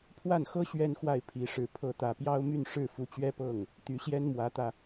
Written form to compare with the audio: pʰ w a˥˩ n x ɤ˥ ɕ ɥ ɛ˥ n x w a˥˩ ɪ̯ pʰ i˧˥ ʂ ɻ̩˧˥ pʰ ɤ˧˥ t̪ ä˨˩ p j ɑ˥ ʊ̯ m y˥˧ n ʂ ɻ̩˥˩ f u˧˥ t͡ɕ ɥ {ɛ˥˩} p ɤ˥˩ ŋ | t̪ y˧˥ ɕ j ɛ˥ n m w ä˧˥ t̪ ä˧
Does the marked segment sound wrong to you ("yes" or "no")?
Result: yes